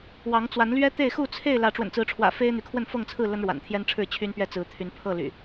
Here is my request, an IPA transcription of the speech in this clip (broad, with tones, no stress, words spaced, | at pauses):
wɑ˨˦ŋt͡swa˨˦nlɥɛ˦t̪e˥˨ɪ̯ xu˥˨t͡sʰe˥˨ɪ̯ lä˨˦ʈ͡ʂwə̰˨˩nt͡sɹ̩˨˦ʈ͡ʂʰwä̰˨˩ fe˦ɪ̯n̪y˨˦kʰwə˥˨n fɤ˥˨ŋt͡sʰɹ̩˥˨ lə˦nɻwa̰˨˩nt̪ʰjɛ˦nʈ͡ʂʰɻ̩˥˨ t͡ɕʰy˦npɥɛ˦ t͡sɹ̩˨˦ t̪ʰy˨˦npʰɤ˥˨ ly̰˨˩